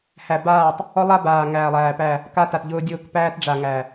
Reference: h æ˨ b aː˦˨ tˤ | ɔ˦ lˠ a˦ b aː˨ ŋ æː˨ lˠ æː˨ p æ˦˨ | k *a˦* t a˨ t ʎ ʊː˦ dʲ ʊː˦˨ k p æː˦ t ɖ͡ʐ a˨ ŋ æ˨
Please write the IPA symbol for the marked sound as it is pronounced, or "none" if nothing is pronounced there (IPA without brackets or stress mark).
a˦